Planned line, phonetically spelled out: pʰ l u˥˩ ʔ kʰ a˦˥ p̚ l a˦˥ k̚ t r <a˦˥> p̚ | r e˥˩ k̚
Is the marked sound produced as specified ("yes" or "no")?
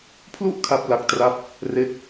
no